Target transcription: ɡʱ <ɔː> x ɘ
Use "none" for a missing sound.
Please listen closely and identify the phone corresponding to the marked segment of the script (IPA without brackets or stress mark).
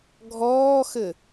ɔː